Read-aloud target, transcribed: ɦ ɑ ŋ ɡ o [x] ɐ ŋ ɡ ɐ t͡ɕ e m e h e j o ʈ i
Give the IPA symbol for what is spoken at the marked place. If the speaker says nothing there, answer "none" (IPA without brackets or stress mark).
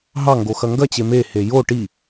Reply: x